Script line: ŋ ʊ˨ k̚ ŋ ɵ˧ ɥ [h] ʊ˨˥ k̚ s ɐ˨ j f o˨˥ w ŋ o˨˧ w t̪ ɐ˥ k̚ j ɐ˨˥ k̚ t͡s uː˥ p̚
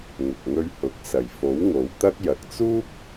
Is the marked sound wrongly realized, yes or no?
no